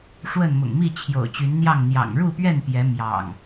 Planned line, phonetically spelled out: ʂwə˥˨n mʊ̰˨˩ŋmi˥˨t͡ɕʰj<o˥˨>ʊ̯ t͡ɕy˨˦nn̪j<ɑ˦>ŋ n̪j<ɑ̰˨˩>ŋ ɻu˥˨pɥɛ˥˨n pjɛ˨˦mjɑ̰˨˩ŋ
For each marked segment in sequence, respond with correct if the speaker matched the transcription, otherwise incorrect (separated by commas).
incorrect, incorrect, correct